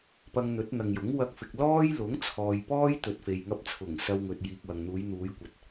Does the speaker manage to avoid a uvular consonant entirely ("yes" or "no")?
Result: yes